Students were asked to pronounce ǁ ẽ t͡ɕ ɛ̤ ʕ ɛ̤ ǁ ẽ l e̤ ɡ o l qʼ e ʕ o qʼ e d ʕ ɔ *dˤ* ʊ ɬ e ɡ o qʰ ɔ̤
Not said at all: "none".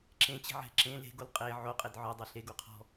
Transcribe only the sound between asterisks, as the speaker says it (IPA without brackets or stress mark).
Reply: dˤ